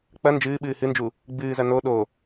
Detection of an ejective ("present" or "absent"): absent